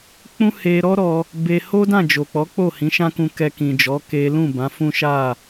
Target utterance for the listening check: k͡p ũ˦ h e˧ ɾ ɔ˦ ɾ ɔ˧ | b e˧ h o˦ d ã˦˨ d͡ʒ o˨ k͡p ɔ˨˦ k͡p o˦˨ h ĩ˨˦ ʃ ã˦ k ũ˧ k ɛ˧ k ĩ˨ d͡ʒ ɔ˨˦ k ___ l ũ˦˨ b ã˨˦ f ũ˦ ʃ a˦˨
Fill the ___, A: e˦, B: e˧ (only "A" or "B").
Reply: A